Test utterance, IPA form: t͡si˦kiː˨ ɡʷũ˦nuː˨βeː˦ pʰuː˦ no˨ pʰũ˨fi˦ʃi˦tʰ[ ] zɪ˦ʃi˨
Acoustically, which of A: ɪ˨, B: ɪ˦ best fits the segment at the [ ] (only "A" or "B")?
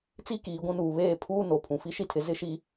A